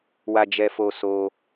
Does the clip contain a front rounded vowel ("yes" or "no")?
no